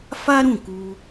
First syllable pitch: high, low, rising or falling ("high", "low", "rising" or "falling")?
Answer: high